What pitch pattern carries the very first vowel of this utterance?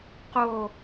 falling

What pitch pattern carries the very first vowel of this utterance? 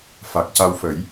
low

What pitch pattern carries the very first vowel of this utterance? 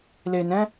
low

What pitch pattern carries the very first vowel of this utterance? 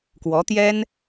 rising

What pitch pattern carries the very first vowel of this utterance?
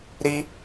high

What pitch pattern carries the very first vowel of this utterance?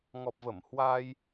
low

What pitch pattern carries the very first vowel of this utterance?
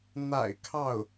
low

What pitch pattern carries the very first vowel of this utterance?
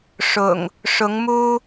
low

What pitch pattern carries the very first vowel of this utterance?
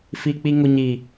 low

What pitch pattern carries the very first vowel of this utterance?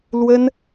high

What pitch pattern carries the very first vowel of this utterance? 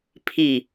low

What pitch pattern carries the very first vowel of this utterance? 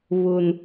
low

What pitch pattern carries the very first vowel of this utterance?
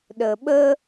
low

